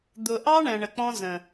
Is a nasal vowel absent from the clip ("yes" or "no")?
no